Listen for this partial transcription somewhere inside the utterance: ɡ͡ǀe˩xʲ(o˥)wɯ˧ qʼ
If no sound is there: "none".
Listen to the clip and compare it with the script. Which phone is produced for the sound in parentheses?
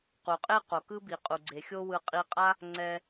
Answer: o˥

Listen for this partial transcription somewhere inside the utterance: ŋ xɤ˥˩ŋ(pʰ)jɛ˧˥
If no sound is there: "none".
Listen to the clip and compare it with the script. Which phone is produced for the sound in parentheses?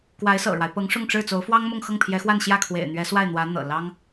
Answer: pʰ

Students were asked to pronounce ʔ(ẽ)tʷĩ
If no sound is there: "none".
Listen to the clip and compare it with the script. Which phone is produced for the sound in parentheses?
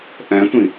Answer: ɛ̃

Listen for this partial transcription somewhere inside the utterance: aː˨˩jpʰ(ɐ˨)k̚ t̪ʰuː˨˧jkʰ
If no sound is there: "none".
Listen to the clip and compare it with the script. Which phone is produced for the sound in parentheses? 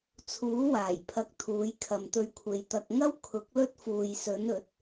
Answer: ɐ˨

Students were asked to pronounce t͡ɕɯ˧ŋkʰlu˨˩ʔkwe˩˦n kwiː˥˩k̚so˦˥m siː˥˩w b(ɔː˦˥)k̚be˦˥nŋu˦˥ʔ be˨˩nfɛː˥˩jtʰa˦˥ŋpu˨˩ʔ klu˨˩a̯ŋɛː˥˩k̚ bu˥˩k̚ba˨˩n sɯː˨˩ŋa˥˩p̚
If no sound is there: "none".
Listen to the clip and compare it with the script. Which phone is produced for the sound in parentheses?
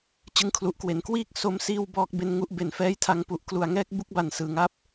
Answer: ɔː˦˥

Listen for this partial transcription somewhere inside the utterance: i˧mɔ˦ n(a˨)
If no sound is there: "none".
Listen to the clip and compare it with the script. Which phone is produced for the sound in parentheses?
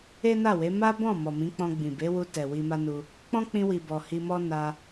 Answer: a˧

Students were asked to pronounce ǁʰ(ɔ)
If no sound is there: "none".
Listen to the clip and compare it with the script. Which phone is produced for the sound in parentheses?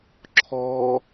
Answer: ɔ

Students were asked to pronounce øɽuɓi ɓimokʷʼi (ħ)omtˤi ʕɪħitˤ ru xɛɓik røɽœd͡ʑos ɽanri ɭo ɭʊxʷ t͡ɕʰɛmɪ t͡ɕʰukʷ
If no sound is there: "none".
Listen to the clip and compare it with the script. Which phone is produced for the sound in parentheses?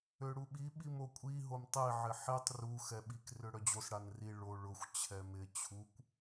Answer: ɦ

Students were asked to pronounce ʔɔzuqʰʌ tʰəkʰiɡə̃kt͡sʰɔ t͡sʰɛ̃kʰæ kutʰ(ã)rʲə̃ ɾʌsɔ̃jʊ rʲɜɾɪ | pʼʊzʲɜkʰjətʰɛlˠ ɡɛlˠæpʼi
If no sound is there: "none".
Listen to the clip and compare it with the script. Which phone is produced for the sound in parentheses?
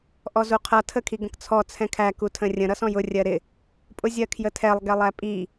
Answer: ə̃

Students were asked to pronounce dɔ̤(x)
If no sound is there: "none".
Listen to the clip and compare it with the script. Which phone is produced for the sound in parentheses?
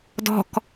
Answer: k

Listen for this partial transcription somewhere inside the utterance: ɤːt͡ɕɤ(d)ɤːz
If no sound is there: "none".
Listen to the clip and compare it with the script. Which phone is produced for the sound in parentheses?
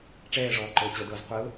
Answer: d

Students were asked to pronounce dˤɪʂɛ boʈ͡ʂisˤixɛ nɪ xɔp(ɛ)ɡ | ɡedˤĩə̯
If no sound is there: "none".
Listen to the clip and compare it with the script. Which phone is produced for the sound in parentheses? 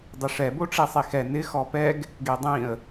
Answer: ɛ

